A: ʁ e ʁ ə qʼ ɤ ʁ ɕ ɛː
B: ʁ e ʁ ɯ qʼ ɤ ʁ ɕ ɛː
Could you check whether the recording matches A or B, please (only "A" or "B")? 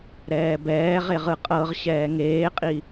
B